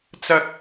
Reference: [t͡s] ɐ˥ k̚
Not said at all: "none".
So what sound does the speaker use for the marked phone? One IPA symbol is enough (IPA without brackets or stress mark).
t͡s